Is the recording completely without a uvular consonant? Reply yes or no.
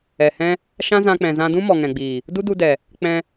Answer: yes